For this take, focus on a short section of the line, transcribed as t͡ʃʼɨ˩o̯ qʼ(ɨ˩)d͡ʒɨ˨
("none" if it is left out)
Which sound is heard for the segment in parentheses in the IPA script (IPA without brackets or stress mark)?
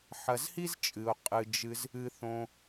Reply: ɨ˩